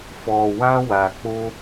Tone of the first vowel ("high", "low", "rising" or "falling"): low